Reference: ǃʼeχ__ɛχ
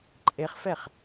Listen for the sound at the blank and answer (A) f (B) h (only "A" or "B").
A